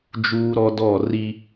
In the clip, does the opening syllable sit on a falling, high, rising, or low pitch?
high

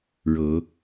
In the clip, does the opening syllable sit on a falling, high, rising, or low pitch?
rising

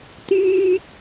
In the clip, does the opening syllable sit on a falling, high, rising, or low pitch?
high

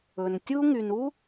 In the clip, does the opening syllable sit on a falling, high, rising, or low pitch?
low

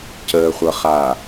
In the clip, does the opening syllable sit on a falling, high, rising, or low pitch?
low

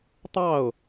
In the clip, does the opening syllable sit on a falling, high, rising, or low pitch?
falling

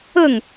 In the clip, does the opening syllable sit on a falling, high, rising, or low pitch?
falling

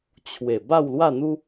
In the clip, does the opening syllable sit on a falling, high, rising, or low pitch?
low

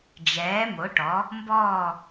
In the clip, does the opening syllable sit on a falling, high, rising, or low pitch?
rising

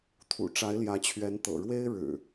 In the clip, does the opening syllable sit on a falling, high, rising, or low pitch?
low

